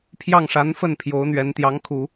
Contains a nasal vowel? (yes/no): no